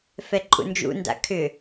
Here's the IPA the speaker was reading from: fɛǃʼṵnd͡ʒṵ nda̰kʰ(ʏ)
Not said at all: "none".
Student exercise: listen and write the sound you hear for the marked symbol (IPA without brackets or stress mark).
ʏ